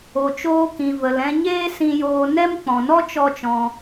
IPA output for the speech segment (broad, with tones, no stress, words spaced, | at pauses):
o˨t͡ʃoː˧kĩ˨ və˨lɛ̃˧ɲeː˦ sĩ˧joː˧ nɛ˦mk͡pɔ̃˨ nɔ˦ t͡ʃɔ˦t͡ʃɔ̃˧